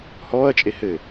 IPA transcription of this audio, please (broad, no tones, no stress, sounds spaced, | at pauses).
h ɔː ɐ̯ t͡ʃʼ e h ɘ